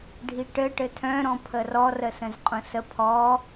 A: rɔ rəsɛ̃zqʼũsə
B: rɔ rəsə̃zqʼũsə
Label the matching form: B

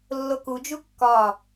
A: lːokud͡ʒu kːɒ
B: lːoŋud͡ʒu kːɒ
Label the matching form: A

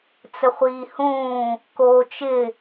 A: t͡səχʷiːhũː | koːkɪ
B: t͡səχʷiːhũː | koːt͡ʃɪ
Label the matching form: B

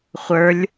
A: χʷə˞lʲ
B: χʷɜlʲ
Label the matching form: A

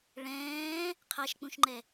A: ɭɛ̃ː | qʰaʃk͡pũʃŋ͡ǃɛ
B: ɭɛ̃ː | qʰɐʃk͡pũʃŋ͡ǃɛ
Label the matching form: A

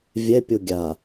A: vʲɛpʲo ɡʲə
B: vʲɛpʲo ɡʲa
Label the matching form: B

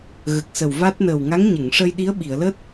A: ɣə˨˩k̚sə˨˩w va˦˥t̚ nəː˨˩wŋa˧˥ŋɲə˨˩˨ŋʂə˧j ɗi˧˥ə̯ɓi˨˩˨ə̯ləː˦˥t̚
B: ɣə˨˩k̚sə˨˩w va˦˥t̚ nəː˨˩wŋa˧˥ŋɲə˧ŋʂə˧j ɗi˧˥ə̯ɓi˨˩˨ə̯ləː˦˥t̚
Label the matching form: A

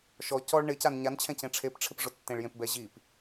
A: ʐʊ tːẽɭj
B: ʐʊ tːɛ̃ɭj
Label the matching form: A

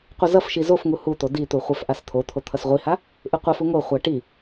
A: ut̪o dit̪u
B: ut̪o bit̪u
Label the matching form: A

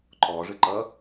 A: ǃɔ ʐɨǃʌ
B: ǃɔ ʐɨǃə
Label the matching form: A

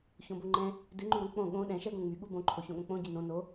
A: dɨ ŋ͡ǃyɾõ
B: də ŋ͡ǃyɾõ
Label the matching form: A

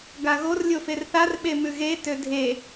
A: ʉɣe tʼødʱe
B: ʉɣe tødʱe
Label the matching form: B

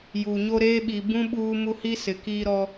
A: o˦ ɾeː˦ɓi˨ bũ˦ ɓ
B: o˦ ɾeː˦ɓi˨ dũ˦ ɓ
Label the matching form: A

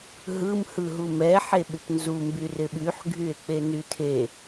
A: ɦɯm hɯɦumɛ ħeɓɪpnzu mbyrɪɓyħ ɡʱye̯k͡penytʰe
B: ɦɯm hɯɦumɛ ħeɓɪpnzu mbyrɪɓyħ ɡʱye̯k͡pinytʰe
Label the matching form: A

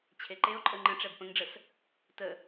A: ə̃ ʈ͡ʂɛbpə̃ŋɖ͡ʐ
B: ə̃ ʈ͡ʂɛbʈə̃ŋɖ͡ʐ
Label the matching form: A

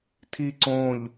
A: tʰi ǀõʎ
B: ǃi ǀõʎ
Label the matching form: A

